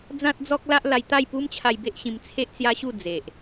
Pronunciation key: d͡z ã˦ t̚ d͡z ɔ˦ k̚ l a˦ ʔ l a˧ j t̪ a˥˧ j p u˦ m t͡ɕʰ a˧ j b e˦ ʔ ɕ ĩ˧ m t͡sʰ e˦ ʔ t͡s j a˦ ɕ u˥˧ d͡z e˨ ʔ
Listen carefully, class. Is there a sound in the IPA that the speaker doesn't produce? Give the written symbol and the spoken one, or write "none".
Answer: none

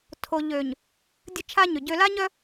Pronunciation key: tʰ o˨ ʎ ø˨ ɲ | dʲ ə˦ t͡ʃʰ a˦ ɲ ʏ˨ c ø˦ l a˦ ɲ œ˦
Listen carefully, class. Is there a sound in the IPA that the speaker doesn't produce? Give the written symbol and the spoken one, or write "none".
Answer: c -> ɟ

